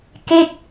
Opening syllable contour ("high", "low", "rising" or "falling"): falling